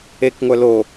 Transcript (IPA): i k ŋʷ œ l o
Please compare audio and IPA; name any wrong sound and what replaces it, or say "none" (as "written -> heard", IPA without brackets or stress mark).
i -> e